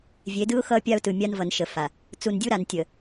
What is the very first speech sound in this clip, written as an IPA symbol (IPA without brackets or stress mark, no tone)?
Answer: vʲ